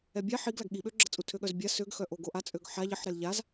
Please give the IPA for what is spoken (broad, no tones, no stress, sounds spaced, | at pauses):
ɛ bʲ a ħ i ɡ l a ɡ ɠ i ɓ ø ɡ͡ǁ ə t͡sʼ u tʰ ø ɠ œ z bʲ a s ø ɡ x œ ʔ o ɡ o ʔ a t͡sʼ ø ɡ ħ a ʎ ə ħ ɾ ɛ l ʎ a z